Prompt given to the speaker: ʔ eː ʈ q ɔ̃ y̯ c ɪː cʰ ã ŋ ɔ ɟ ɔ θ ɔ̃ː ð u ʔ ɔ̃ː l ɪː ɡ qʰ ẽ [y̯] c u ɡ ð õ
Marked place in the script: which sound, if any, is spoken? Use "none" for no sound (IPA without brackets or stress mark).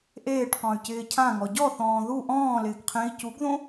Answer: i̯